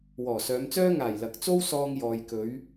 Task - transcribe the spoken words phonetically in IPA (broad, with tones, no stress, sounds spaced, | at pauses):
w ɔː˨˩ s œː˨˧ m t͡s œː˥ ŋ aː˨˩ j l ɐ˨˥ k̚ t͡s o˥ w s ɔː˧ ŋ j ɔː˨ j k ɵ˨˧ ɥ